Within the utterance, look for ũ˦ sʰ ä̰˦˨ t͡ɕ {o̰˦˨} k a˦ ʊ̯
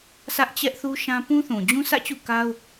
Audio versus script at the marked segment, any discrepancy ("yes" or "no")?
yes